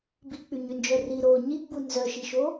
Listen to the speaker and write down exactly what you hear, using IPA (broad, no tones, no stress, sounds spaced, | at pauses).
b i k͡p y ɲ y n d͡ʒ œ r i ɾ oː ɲ i ɡ͡b u n z œ ʃ i ʃ o